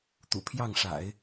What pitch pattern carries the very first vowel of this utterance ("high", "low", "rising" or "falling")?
low